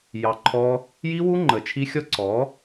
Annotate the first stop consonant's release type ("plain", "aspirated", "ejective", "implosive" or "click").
click